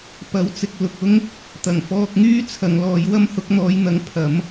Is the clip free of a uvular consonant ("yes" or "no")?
yes